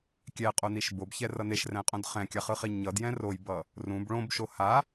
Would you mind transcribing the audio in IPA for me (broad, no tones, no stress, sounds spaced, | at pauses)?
kʲ ɛ qʼ o n i ʃ b o b ç ɛ r ʌ n e ʃ r ɛ̃ qʼ õ d χ ɛ̃ kʲ a χ ɯ χ i ɲ ʌ d j ɛ̃ r o j b ʌ | r ũ b ɭ õ b ʃ o h a